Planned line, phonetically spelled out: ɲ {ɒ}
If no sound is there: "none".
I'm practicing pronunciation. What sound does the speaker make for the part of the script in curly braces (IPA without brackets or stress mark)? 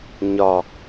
ɒ